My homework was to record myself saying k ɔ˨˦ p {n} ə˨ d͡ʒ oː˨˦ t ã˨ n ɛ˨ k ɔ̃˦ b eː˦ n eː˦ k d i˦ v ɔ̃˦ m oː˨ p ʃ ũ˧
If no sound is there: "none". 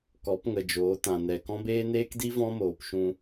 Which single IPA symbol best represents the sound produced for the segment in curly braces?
ŋ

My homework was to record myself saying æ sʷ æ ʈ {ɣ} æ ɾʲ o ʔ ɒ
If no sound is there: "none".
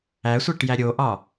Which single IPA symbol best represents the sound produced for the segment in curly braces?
j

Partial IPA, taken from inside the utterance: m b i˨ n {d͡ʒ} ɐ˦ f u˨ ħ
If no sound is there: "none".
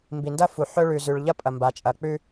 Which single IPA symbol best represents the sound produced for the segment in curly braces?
d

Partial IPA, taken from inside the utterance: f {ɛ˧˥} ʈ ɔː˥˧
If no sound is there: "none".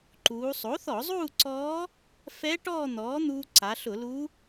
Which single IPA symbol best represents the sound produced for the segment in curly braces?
ɛ˧˥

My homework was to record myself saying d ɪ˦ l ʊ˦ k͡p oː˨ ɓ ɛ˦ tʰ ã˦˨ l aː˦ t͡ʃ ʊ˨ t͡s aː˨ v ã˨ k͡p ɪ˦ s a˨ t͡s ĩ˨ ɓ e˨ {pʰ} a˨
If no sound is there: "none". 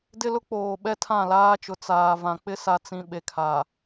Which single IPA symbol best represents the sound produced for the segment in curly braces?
kʰ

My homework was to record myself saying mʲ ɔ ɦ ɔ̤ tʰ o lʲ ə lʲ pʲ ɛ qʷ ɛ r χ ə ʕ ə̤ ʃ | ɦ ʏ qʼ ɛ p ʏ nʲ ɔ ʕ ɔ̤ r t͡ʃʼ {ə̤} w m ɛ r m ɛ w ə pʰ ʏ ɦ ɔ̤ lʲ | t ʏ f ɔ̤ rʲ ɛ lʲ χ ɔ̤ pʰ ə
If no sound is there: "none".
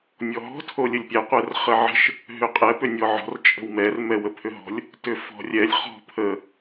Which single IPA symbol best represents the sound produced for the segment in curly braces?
ə̤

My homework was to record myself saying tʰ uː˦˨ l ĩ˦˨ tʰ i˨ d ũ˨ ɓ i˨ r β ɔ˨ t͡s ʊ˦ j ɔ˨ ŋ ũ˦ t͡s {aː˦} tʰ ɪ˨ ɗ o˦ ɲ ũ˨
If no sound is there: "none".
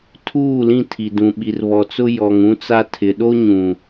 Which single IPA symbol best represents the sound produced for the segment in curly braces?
a˦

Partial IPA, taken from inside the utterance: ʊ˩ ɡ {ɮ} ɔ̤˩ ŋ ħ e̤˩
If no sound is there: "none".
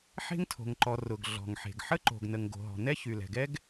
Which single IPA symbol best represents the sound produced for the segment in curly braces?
ɮ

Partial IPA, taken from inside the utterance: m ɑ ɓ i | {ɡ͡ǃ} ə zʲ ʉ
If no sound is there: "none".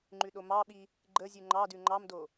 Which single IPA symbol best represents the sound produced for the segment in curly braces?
ɡ͡ǃ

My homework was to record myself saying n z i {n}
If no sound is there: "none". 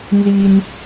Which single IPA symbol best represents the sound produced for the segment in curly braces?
n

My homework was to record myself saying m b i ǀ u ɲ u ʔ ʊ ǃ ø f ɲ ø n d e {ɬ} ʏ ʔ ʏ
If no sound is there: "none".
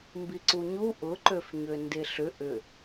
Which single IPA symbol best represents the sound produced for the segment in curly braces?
ɬ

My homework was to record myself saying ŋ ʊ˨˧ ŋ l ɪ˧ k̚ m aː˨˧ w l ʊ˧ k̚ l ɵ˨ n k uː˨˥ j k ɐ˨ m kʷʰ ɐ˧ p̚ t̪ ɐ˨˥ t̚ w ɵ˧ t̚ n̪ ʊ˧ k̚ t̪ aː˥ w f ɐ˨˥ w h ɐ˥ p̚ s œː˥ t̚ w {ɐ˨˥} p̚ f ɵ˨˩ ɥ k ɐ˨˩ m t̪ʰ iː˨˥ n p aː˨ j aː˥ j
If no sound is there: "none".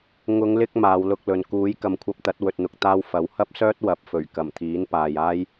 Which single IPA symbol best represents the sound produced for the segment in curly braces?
ɐ˨˥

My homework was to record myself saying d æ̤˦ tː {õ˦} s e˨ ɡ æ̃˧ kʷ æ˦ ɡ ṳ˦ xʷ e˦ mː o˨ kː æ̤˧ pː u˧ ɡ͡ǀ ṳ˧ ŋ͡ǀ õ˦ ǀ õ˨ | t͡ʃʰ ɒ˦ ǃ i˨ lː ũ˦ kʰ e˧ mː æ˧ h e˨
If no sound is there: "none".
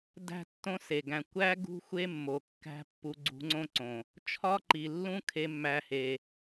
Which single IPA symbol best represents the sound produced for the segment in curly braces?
õ˦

